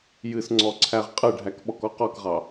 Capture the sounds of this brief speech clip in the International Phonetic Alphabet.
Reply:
j ɨ s ŋ͡ǀ ɔ ǀʰ æ ʁ qʼ ɨ ɖʱ æ k ɓ ɔ k ɔ q ɔ k ʁ ɑ

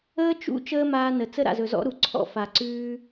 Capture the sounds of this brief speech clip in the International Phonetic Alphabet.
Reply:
əː˦ t͡ʃ ṵ˦ t͡ʃ əː˦ m aː˧ n ə˨ t͡s ə˦ ɾ a̰˨ z ɵ˨ z ɔ̰˦ ɾ u˨ ǀʰ ɔ̰˦ f a˨ ǀ ʉː˦

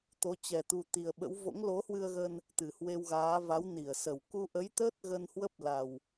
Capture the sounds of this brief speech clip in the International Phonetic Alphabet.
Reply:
t̪ o˨˦ t͡ɕ ɛ˨˩ t̪ u˨˩ t̪ i˨˩ ə̯ ɓ ə̰˧˥ w v o̰˧˥ ŋ l o˨˦ h w ɨ˧ ə̯ ɣ ə˧ n | t̪ ɨ˧˩ h w e˧ w ɣ aː˨˦ v a˨˦ w n i˧˩ ə̯ s ə˧˩ w k u˧ ʔ ə˨˦ j t̪ əː˦˥ t̚ ɣ ə˧ n h w ə˦˥ p̚ l a˨˩ w

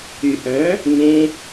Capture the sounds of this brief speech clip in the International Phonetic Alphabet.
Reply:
y ʔ œ̃ | ŋ ẽ

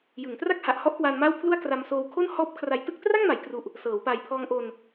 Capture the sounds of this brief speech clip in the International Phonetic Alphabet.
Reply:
j ɯ˩˦ ŋ t r a˥˩ k̚ h a˨˩ ʔ h ɔ˥˩ ʔ k w a˧ n m a˥˩ w pʰ l u˥˩ a̯ k r a˧ m s oː˧ w kʰ o˥˩ n h ɔː˦˥ p̚ kʰ r a˨˩ j t ɯ˥˩ k̚ t r a˥˩ ŋ m a˩˦ j k r u˨˩ ʔ | s ɤː˩˦ w p a˨˩ j pʰ ɔː˧ ŋ ʔ o˧ n

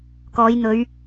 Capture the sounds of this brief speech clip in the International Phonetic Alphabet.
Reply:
k ɔː˨˧ j n̪ ɵ˨˧ ɥ

